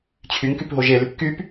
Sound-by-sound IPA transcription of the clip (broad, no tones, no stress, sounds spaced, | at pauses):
t͡ɕʰ y ŋ k y p ɦ o ʒ e l y p k y p